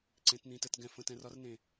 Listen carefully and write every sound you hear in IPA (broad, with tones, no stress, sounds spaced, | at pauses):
ǀ ẽ˧˥ t n̪ ĩ˧˥ t ə˧˥˧ t ɡ ɛ̃˦˨ f ə̃˧˥˧ t ɛ̃˧˥ r ɒ˥ r n ẽ˦˨